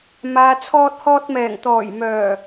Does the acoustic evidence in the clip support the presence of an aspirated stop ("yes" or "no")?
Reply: yes